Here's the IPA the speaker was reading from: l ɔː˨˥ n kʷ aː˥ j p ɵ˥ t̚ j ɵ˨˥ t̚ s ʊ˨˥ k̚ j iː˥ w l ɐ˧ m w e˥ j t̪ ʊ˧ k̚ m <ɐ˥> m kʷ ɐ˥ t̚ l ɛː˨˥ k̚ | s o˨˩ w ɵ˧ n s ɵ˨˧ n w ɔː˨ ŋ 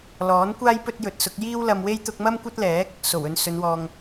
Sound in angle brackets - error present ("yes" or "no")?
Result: no